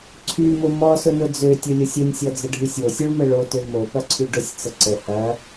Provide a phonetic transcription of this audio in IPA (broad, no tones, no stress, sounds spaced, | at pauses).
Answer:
ǀʰ y m ʊ m ɔ s ʊ n ʊ d͡z ø tʲ ʊ lʲ ʊ sʲ ə nʲ sʲ ɔ d͡z ə ɖʱ y sʲ o sʲ o ɭ m ə ɭ o t ø m o p ɐ ǀʰ y ɖ ʊ sʲ t͡s ə ǀ ə h ɐ